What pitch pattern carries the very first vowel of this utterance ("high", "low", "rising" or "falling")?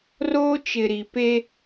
high